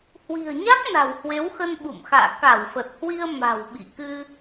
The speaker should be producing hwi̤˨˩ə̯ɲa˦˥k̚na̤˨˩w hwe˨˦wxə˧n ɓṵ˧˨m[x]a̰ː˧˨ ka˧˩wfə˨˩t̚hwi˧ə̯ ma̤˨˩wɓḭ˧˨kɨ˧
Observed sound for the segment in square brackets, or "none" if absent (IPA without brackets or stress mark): x